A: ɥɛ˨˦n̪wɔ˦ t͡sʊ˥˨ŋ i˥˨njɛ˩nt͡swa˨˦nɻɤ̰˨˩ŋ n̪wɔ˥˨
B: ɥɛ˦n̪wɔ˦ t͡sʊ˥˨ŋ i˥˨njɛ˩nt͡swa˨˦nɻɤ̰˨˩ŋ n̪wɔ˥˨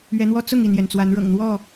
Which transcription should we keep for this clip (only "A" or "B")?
A